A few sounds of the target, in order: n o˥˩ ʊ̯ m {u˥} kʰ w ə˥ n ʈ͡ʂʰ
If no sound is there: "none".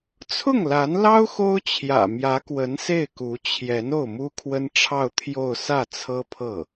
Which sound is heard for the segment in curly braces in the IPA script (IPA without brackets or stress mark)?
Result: u˥